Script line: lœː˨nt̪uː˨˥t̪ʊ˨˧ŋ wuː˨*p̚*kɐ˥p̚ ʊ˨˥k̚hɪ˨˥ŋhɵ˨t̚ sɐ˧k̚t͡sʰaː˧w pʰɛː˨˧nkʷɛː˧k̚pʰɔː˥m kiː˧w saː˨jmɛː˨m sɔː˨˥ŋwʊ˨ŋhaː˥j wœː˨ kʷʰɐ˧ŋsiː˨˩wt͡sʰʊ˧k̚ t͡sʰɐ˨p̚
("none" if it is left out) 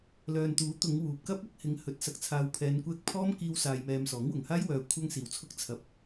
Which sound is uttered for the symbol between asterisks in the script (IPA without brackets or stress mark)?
p̚